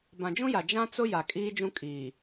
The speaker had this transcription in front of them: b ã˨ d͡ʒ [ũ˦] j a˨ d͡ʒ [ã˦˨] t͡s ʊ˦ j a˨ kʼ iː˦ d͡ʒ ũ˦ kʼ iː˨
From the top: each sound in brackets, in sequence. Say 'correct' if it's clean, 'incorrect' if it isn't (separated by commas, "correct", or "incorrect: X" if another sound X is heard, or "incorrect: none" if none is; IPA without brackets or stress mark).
correct, incorrect: ã˦